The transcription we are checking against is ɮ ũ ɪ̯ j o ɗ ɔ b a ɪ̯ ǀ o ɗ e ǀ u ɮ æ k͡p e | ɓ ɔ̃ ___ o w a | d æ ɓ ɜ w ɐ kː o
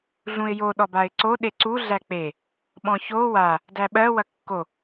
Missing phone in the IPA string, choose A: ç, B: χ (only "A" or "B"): A